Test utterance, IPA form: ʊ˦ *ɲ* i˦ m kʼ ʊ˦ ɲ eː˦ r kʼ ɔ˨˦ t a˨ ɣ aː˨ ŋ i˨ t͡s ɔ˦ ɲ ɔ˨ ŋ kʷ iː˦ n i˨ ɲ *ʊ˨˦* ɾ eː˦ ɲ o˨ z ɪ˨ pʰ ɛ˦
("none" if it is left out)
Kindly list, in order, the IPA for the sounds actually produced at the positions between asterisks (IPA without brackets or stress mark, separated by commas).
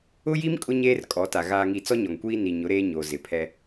j, ʊ˨˦